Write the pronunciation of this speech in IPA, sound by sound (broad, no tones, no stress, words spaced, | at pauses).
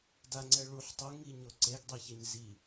daŋ͡ǀɛ ɭuħ tˤuŋiɲo ǀeɡdˤeçɛɲ zi